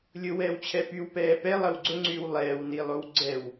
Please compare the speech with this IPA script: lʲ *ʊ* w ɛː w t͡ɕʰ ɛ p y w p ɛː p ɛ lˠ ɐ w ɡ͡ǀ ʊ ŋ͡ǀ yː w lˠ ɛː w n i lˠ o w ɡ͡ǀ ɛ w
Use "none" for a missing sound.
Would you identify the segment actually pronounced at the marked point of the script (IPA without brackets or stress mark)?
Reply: ʊ